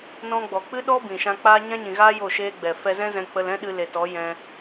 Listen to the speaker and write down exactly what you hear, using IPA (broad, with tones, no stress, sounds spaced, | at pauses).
n ɔ̃˧ ɡ͡b ɔ˨ k͡p ɨ˦ ɗ ɔ˦ b ĩ˨ ʃ ã˧ k͡p aː˦ ɲ ã˦ ɲ ĩ˨ ɣ aː˦ j o˦˨ ʃ eː˦ ɡ͡b ɛ˨ f ɛ˧ z ɛ̃˦ z ɛ̃˧ k͡p ə˧ l ɛ̃˦ ɗ ɨ˧ l e˨ t ɔ˨˦ j ɛ̃˧